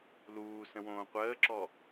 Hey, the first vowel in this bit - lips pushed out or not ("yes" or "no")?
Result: yes